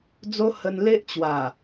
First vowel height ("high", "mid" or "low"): mid